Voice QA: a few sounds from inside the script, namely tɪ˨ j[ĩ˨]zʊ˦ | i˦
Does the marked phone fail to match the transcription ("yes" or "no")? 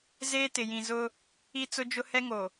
no